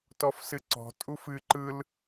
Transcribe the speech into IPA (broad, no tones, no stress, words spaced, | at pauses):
tɔfsɨǀɔ̤ tʼufɨ ǃɯl